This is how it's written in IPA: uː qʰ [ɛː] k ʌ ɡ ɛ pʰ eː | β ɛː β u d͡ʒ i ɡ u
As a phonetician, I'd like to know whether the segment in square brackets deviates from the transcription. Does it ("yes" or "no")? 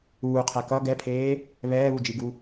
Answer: yes